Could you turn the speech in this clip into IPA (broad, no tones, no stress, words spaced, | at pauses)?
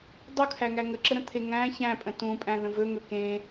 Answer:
dˤukʰæŋæ ŋəǁəɾə̃t̪ʰe ŋæ̃ çæ̃pʼə̃ tũpʼæ̃ðə̃ vɵŋɵ kẽ